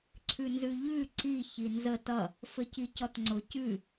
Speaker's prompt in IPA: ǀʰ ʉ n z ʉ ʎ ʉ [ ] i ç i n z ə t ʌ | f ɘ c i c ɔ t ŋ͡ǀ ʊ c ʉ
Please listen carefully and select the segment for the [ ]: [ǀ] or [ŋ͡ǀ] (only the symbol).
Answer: ǀ